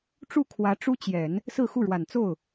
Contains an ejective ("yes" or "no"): no